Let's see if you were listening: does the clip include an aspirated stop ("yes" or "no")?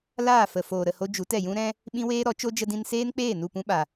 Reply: no